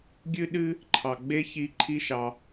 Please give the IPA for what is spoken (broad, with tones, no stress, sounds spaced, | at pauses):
ɡʲ ɨ˧ ɗ ɨ˧ | ǃʰ ɑ˩ ɡ͡b e˥ ç i˧ ǃʰ i˧ ʃ ɑ˩